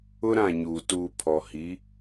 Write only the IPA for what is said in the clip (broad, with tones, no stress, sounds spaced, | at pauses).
ʊ˦ ɾ ã˦˨ ɲ uː˨ t uː˨ pʰ ɔ˨ h i˨˦